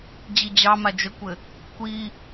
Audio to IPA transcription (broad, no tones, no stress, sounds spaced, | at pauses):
d͡ʑ i d͡ʑ ɑ m a d͡ʒ ə kʷ ɘ | kʷ i